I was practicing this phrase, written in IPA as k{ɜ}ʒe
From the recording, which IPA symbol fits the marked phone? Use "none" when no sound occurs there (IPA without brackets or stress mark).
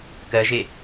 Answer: ɜ